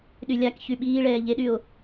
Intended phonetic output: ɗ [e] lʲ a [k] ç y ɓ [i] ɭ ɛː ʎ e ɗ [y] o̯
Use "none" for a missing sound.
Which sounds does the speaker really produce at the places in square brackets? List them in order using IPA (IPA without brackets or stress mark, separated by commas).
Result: y, k, iː, y